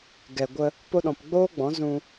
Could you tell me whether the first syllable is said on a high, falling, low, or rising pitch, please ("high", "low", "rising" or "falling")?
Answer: low